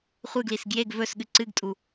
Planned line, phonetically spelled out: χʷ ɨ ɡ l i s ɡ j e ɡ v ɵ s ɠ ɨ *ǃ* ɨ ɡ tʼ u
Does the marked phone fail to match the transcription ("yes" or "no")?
yes